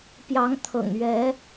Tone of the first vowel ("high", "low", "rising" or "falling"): rising